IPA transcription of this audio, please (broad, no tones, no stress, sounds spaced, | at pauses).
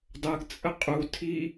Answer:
dˤ ə ɡ t͡sʼ ə qʼ u tʰ i